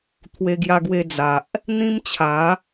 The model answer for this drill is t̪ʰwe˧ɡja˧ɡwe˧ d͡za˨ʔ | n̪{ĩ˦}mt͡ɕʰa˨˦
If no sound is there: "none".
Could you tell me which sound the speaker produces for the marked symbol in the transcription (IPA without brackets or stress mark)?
ĩ˦